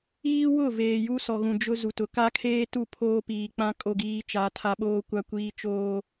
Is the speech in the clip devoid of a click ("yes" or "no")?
yes